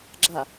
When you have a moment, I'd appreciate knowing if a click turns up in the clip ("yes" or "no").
yes